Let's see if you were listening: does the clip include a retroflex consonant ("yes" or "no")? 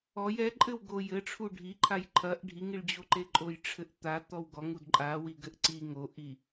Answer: yes